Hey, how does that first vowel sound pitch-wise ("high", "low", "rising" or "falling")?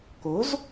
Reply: rising